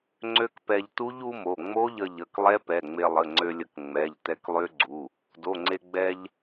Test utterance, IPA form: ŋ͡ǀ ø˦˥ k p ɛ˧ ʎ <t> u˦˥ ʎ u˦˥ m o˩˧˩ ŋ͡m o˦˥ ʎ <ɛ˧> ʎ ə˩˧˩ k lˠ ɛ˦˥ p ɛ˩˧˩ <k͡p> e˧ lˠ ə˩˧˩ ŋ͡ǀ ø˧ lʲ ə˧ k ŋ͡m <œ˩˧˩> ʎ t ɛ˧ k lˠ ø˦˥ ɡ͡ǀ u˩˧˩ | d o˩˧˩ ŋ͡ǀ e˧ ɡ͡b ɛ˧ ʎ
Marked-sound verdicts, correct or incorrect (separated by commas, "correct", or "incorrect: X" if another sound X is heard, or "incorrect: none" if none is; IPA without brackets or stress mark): correct, incorrect: ə˧, incorrect: ŋ͡m, incorrect: ɛ˩˧˩